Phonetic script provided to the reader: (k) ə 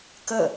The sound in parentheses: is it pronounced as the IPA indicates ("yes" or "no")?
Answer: yes